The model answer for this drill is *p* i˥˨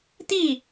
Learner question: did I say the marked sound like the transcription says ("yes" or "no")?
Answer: no